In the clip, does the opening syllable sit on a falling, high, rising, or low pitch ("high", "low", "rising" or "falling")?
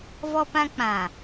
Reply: high